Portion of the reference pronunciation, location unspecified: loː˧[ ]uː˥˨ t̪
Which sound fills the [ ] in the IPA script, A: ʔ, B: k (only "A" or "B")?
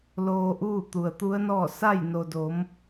A